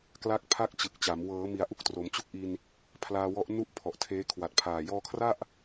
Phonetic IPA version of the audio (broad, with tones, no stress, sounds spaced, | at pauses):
k l a˦˥ k̚ pʰ a˥˩ k̚ t͡ɕ ɯ˨˩ k̚ t͡ɕ a˩˦ m w ɤː˩˦ m i˩˦ a̯ ʔ u˦˥ k̚ t r o˩˦ m t͡ɕ u˥˩ k̚ ʔ i˧ n | pʰ l aː˧ w ɔ˦˥ ʔ n u˥˩ ʔ pʰ ɔ˨˩ ʔ tʰ eː˦˥ kʰ w a˨˩ t̚ pʰ aː˨˩ j ɔː˧ kʰ r a˥˩ ʔ